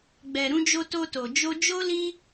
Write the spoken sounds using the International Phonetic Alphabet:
ɡ͡bɛ˨ɾũ˨˦d͡ʒo˧ to˧to˨ d͡ʒo˧d͡ʒo˦ li˦

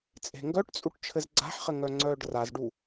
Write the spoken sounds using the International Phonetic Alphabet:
t͡sʼe̤ŋɡœʈt͡sʼuʈ t͡ʃʰɘzɡ͡ǀa̤ħχɘ ŋœŋ͡ǀœːɖrazɖu

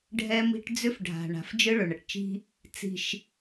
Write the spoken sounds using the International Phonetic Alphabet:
ɖʱɛ˦mi̤˦ʈ d͡zʏ˦fɖʱa̤˨ ɳa̤˨fd͡ʒɯ˦ ɭɵ˨ɳɐ˨ʈt͡ʃi̤˦ | t͡si̤˨ʃ

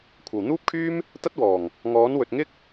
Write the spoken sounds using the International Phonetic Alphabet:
kʷʰɐ˨˩wn̪uː˥p̚kʰyː˥m | t̪ɐ˥t̚wɔː˨˩ŋ | ŋɔː˨˥nwɵ˨t̚ ŋɪ˥k̚

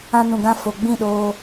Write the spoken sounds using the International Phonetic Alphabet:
ã˧nũ˨ɡã˧ fo˨ɡ͡bĩ˦˨ɗoː˧

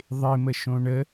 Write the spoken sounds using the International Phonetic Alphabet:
ðˤɪməʃõ ɳə

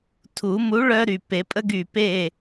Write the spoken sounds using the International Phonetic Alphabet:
tʰu˨˩˦mu˨˥ ɭœ˦ɾy˧˩ pe˨˩˦pʼə˦ɡy˧˩ pe˧˩

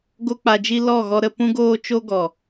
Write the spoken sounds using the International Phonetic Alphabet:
ɡo˦k͡pa˧d͡ʒi˦ lɔ˦˨ɣɔ˧ ɾə˧pũ˦ɡoː˦t͡ʃo˦ ɡɔ˨

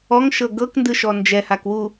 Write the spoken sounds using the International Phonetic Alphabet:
ɔŋʃɤ ɡɤkndɯʃɔ nd͡ʒɛhakwu

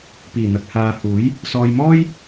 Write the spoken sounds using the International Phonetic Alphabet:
piː˨˩n̪ɐ˨k̚haː˨ huː˨˥j | sɔː˨jmɔː˥j

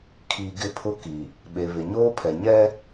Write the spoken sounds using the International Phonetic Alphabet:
kʰi˨ ɡɪ˦pʰʊ˦ ki˨ | ɓe˨βɪ˨ɲoː˦pʰɛ˨ ɲɛ˦

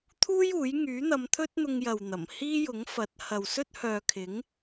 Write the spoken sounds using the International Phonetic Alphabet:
t̪ʰuː˥juː˨˥j ŋyː˨˥n̪ɐ˨˧m t̪ʰɵ˥t̚n̪ʊ˧ŋ jɐ˨wn̪ɐ˨˩m hiː˥jʊ˨˥ŋ fɐ˨˥t̚ hɐ˨wsɵ˥t̚hœː˨kʰɪ˨˥ŋ

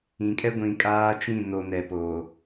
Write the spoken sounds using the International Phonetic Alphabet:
ĩ˨kʼɛ˦ ɡʷĩ˨kʼaː˦t͡ʃĩ˦˨ no˨nɛ˨poː˨

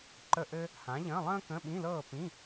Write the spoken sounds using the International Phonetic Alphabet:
ǃə˥˨ʔɘ˥ | hã˨˥ʎə̃ː˧˥˧lˠə̃ː˥ kə̃˧˥˧ɓĩ˧˥˧lɤː˥˨ pĩ˧˥˧

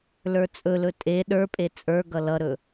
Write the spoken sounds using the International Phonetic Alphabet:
lə˞t͡sʼɵlɵ tʼe ɗə˞pʼe t͡sʼə˞ɡʌ lʌɾɵ

